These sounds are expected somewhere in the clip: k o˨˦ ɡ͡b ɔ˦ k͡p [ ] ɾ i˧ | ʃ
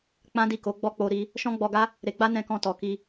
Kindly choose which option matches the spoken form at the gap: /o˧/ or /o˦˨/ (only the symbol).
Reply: o˧